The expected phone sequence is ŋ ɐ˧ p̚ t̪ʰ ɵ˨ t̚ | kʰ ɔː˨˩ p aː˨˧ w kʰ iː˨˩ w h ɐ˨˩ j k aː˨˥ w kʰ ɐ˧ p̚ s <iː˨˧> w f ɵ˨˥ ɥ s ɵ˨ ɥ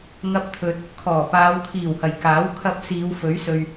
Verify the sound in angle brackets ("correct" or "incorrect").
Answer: correct